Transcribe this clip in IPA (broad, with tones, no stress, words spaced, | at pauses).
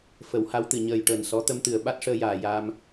fə˨˩˦wha˧˥wt̪ɨ˨˩ ɲəː˨˩jʈəː˨˩n sɔ˧˥ t̪ə˧mt̪ɨ˨˩ə̯ ɓa˦˥t̚ʂəː˧jaː˨˩ jaː˧m